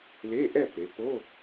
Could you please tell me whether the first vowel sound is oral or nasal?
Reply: oral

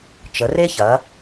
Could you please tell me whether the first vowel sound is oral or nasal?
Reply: oral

